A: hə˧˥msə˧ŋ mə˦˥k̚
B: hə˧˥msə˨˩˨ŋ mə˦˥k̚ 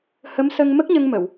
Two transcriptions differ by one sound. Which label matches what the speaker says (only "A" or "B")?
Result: A